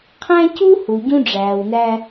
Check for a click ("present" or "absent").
absent